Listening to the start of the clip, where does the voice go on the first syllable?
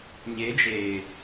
rising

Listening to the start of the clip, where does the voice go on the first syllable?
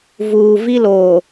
low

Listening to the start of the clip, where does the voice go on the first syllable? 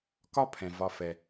high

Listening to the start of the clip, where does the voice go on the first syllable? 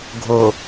low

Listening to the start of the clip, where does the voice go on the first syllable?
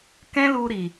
high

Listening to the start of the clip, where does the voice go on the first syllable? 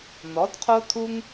rising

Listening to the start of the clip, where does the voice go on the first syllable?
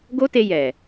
high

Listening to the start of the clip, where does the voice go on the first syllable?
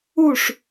falling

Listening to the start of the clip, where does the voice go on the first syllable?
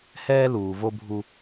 high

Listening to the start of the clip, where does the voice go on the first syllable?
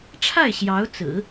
falling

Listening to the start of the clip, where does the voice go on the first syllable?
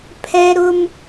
high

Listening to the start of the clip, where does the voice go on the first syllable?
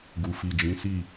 low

